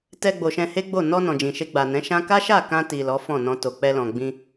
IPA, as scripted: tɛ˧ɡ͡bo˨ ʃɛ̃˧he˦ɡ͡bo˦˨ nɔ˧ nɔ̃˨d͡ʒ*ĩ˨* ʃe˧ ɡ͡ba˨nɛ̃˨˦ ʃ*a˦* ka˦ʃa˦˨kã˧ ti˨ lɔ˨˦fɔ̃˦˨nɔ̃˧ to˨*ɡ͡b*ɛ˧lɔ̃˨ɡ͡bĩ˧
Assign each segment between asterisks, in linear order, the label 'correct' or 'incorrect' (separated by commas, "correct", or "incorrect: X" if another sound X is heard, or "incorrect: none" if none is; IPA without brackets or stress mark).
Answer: correct, incorrect: ã˦, incorrect: k͡p